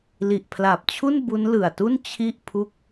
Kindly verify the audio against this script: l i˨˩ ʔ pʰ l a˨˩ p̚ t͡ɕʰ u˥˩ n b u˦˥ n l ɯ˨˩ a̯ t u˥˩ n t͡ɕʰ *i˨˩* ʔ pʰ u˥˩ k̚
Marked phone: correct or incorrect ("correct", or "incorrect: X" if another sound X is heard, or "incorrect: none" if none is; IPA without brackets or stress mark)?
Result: incorrect: i˥˩